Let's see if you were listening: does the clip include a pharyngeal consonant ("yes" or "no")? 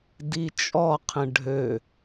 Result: no